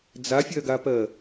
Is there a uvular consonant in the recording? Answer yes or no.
no